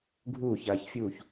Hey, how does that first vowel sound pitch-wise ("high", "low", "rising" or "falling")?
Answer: falling